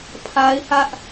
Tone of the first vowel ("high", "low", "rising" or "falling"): high